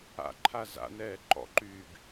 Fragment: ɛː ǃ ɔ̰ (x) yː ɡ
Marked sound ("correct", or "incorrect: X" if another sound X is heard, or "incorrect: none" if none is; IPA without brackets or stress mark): incorrect: ǃ